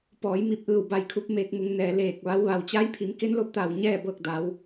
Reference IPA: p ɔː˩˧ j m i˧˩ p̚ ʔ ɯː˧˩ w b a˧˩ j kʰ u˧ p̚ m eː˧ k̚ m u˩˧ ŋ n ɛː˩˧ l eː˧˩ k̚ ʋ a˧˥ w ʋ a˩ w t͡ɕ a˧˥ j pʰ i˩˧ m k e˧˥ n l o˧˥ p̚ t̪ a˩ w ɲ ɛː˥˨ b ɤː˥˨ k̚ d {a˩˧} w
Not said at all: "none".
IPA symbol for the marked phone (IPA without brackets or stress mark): a˩˧